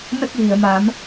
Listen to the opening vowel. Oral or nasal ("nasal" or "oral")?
oral